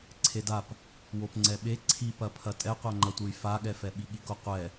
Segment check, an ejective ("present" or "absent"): present